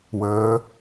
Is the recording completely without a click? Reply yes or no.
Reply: yes